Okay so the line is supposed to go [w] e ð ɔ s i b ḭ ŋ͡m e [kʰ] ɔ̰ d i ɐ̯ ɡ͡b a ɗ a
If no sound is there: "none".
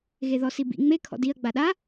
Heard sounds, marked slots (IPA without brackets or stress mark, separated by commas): ɣ, kʰ